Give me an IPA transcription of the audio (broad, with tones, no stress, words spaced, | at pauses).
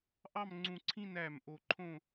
ʔɑ˥˧mŋ͡ǀũ˧ǀʰĩ˥˧næ˧˩m ʔo˧ǃʰõ˥˧